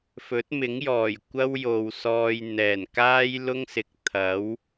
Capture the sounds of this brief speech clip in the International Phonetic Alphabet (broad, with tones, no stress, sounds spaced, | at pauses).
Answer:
f ɵ˨˥ t̚ m ɪ˨˥ ŋ j ɔː˨˩ j kʷ ɐ˥ w j o˨ w s ɔː˧ j n̪ ɛː˨˩ n k aː˥ j l ʊ˥ ŋ s ɪ˨ k̚ t̪ʰ ɐ˨˥ w